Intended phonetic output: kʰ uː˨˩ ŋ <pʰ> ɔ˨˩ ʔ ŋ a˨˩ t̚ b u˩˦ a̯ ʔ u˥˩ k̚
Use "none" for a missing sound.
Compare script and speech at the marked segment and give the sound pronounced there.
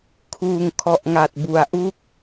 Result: kʰ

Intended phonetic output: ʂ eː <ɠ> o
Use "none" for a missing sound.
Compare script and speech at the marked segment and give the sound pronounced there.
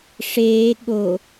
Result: ɠ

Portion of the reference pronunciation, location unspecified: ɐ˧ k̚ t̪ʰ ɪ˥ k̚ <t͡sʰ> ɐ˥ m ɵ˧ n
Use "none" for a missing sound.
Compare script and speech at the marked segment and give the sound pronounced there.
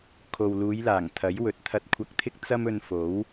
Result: t͡s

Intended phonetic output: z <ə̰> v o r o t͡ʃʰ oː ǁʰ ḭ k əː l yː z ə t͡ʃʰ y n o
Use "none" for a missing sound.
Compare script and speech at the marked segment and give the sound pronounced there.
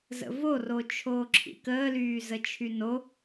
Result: ə̰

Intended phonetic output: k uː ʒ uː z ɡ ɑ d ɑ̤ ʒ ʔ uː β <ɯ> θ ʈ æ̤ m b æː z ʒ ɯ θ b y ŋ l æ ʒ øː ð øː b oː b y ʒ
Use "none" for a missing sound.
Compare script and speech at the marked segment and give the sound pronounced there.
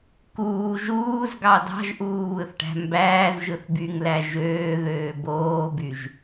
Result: ɯ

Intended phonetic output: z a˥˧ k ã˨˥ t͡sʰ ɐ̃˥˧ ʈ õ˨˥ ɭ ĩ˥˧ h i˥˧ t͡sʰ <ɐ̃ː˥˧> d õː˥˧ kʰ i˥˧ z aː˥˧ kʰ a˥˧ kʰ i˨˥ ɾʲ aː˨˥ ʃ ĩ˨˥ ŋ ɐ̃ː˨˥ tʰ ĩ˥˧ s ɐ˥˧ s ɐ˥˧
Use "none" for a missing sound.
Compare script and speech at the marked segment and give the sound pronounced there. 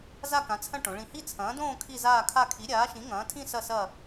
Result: ɐ̃ː˨˥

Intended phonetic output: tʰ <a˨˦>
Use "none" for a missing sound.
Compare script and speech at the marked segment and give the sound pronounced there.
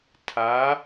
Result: a˨˦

